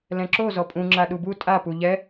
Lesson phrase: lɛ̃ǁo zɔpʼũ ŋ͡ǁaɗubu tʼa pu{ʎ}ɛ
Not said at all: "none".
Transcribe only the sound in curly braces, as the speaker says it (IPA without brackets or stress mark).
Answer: ʎ